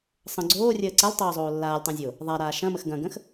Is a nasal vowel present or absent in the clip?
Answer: present